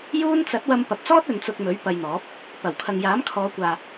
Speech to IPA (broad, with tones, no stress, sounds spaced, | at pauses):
j uː˥ n t͡s ɐ˨˥ t̚ w ɐ˧ m p ɐ˨ p̚ t͡s ɔː˥ t̚ ɵ˨˧ n t͡s ʊ˧ k̚ m ɵ˨˥ ɥ p ɐ˧ j n̪ ɔː˨˥ p̚ | p ɐ˨˩ w kʰ ɐ˨ ŋ j aː˨˥ m kʰ ɔː˨˧ kʷ aː˨